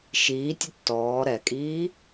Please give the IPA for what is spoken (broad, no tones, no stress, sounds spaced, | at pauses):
ʃ iː tʲ ʊ tː ɔː ɾ ɛ kʼ iː